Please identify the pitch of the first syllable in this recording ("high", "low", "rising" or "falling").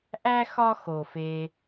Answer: high